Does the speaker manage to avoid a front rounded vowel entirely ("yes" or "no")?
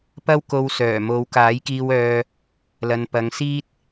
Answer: no